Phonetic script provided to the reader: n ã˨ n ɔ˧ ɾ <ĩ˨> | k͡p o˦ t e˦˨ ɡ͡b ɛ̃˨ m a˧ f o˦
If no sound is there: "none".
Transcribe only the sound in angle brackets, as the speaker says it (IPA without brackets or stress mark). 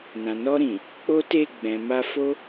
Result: ĩ˨